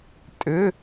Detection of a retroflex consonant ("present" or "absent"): absent